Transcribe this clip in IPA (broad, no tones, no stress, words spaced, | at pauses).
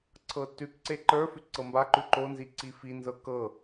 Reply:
ǀʰɤtʉkǀe ǃə˞ fʉǀɤmbaǃʉ ǃonzi ǀifinzɤ kɤ